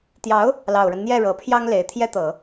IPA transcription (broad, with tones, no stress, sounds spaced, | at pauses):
t̪ j ɑ˧˥ ʊ̯ | l ɑ˨˩ ʊ̯ ɻ ə˦ n n̪ j ɛ˥˩ ɻ ɤ˨˩ pʰ j ɑ˥ ŋ l e˨˩ ɪ̯ t̪ʰ j ɛ˥ t̪ ɤ˨˩˦